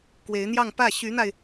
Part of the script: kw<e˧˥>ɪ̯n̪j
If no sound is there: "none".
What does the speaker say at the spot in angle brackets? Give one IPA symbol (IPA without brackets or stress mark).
e˧˥